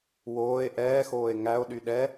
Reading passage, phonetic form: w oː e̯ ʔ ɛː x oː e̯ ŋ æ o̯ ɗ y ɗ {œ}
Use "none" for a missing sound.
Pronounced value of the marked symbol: ɛ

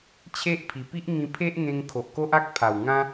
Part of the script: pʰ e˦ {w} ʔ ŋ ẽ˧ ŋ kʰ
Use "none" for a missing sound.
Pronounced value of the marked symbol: none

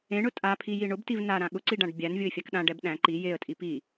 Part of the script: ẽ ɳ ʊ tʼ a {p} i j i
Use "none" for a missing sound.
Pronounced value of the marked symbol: pʰ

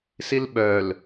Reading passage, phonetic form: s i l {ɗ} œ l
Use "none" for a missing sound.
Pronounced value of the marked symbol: ɓ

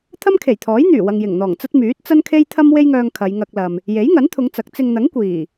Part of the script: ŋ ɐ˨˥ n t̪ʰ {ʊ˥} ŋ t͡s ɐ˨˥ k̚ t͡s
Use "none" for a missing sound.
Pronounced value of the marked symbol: ʊ˨˧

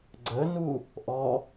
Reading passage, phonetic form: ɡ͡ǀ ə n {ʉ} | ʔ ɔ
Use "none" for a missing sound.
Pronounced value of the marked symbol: u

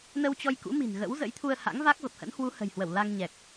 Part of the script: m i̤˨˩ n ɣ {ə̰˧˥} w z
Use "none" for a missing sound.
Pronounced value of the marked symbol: ə̰˧˥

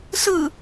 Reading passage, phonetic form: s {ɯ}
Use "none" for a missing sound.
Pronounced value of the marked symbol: ɯ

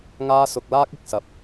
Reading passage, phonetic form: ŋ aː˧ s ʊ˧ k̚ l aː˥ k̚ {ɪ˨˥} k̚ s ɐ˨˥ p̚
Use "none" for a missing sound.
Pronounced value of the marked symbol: ɪ˨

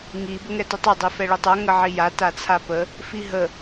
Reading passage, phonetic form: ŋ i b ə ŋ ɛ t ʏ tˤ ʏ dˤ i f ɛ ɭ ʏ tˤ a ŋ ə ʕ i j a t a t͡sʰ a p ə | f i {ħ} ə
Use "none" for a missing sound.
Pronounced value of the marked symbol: ɦ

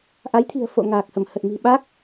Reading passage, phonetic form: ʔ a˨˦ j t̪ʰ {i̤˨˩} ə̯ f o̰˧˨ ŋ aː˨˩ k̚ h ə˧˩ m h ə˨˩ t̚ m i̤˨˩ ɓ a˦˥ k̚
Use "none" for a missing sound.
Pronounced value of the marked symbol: i̤˨˩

